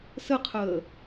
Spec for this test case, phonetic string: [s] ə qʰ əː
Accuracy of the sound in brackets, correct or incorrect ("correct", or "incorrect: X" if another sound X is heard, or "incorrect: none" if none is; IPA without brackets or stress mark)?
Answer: correct